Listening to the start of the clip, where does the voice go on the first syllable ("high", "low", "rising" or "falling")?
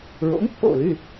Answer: rising